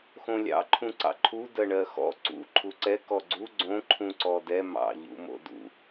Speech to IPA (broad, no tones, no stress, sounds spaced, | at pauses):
x õ lʲ ɑ̰ ǃʰ ũ ǀ ɑ̰ ǃʰ u d ɜ ɳ ɜ x ɔ̰ ǀ ṵ ǃʰ u ǀ ɛ k ɔ ɡ͡ǀ u ɡ͡ǀ õ ǃʰ ũ ǀ ɔ d ɛ m ɑ̰ ʎ ṵ m o̰ d ṵ